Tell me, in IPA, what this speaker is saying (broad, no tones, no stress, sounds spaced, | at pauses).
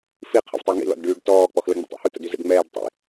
f i qʰ ə̰ v tˤ i ŋ ḭ l ɔ̰ d ɖ yː ɖ t ɔː k͡p ɔ x l ə ŋ͡m ə̰ tˤ ɛ̰ h u t ə̰ d y z ɛ̰ ɖ ŋ͡m ɛː ɖ tˤ ḭ